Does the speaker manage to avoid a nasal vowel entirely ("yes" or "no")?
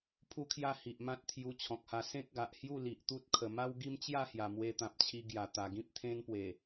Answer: no